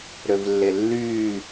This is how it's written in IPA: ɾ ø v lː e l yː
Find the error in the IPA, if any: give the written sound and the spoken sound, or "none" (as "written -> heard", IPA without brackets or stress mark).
l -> lː